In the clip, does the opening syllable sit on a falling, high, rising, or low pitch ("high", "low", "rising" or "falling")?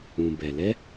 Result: low